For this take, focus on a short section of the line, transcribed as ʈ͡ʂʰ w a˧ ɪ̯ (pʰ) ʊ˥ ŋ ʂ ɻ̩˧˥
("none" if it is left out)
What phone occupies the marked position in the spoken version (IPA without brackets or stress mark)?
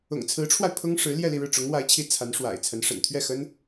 pʰ